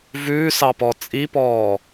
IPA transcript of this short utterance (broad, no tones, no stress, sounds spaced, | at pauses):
v ʉː s ɑ p ɔ t͡sʼ i p ɔː